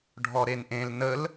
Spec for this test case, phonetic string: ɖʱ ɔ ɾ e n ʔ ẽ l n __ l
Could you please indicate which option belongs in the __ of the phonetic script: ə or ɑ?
ə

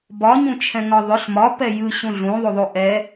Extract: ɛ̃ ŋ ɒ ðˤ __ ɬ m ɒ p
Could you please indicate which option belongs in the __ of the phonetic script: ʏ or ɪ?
ʏ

